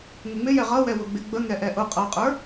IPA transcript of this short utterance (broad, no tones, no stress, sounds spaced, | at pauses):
ŋ ə ŋ͡m ɪ j ɛ ʁ ʌ w ɛ w ʊ ɡ͡b ɪ ɡ͡b ə ŋ ɛ ʔ ɛ ʔ ʊ qʼ ʌ qʼ ə˞